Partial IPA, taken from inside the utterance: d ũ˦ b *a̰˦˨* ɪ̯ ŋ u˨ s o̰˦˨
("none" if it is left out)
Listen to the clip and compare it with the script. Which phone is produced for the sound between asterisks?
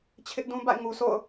a̰˦˨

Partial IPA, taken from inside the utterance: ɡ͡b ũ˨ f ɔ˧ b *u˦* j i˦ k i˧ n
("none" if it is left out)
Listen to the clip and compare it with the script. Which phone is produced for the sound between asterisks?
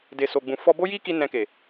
o˦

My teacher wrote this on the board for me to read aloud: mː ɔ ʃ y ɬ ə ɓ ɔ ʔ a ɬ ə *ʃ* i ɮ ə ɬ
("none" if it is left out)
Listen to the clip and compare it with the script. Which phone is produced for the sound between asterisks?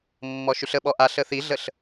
θ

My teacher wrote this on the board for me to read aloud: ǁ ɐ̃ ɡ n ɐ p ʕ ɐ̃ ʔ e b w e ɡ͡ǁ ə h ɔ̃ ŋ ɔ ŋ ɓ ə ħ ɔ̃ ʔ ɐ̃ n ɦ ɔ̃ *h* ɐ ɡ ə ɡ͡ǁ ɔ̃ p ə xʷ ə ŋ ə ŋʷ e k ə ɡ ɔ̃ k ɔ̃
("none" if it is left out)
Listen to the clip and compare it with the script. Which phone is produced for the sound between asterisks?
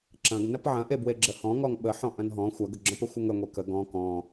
xʷ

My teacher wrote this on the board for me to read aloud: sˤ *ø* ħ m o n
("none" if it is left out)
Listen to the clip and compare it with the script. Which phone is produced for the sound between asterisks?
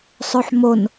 ø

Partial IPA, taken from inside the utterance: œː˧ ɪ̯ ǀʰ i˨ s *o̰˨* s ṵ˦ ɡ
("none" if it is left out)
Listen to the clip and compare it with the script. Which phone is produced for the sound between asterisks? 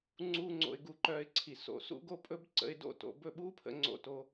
o̰˧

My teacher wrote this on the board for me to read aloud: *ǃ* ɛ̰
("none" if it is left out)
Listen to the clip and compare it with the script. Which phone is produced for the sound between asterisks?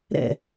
ɾ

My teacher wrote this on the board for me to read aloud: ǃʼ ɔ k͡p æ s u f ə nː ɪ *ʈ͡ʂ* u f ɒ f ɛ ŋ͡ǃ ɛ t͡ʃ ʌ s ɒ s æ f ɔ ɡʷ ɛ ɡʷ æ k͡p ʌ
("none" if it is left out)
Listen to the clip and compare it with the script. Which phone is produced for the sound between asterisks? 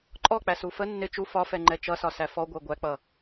t͡ʃ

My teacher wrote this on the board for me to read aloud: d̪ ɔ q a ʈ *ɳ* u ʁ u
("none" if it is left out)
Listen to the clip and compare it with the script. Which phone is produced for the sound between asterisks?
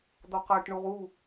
ɳ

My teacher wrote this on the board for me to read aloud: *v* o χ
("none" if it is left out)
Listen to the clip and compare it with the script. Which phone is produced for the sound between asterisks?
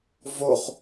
v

